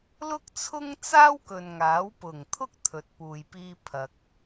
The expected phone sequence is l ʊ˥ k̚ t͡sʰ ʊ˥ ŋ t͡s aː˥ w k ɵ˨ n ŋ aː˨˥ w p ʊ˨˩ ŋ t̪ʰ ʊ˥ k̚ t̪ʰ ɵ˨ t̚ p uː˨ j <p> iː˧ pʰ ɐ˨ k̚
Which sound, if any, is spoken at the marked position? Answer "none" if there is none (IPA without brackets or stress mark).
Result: p